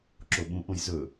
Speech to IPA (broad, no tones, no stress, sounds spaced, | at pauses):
ǁ o ɓ ũ ʔ õ j z ɵ